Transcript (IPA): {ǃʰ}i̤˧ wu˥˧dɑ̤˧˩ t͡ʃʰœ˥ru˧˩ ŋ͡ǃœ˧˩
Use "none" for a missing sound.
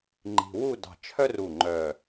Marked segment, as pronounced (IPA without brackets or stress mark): ŋ͡ǃ